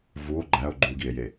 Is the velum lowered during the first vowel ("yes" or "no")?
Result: no